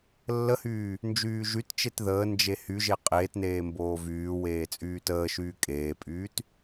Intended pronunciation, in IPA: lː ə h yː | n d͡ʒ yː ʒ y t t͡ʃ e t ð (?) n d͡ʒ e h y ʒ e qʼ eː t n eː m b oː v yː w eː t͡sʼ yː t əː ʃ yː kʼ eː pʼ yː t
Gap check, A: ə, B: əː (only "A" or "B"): B